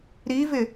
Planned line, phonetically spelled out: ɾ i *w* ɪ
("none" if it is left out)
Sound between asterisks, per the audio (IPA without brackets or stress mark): v